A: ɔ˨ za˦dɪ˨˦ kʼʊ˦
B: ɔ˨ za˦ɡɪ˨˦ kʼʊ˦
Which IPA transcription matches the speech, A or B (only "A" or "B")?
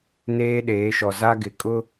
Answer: B